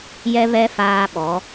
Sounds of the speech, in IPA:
j ɛ˦ β ɛ˦ f aː˦ ɓ ɔ˨˦

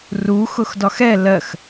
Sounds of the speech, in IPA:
r u x ʊ x d ɒ x ɛ l ɜ x

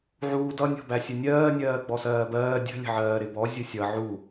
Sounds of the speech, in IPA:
ʕ uː d ʌ nʲ ɔ̤ b æ sʲ ə nʲ ɜː nʲ ɜː ɡ͡b ɔ s ɜː b ɜː dʲ ə̤ lʲ ə̤ ʕ ɜː ɾ ɪ b ɔ zʲ ʊ sʲ ʌ ʕ u

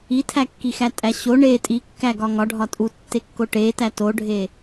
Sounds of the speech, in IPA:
i tʰ æ kː i x æ tʼ æ ɕ o ɳ e tʼ i kː æ ɡ ɒ ŋ ɒ ɖʱ ɒ tʼ u tː e kː o ʈ e t æ t o ɖʱ e

